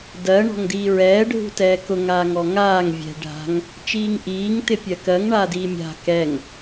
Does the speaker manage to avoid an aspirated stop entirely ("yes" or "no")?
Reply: yes